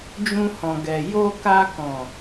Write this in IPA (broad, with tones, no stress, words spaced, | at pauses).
d͡ʒũ˧hɔ̃˨ɡɛ˨ jo˧ ka˧kɔ̃˨